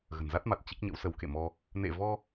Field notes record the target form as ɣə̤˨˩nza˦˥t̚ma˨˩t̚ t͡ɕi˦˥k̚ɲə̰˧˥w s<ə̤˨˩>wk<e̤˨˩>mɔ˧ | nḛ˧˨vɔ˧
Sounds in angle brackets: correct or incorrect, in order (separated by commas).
incorrect, incorrect